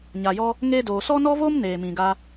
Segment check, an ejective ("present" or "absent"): absent